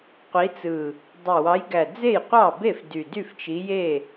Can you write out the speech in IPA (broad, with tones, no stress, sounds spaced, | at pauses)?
qʷ i˨˦ t͡s ɯ˨˩ | dˤ e˨˩ w ɑ˨˦ j ɡ æ˨˩ d͡z e˥˩ j qʷ ɑ˥˩ b e˥˩ f d y˨˩ d y˥˩ f t͡ʃ i˨˦ j e˥˩